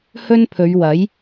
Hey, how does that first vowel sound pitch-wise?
high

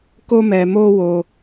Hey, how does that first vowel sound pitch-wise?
high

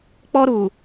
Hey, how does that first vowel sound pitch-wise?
high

